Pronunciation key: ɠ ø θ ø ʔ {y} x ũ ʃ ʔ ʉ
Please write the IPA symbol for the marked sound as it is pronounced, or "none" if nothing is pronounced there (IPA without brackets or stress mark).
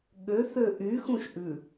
y